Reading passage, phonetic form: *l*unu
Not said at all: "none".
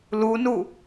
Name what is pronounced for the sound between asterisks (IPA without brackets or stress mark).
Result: l